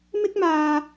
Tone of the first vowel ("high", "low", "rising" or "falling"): high